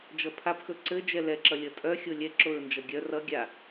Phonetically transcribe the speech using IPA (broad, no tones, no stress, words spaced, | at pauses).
d͡ʒʌpʰapxɵ ǀɘ d͡ʒɛlɛǁʌ lʲʌtʼœxʲo lʲɛ ǁoɹnd͡ʒʌɡʲœ rʌ ɡʲa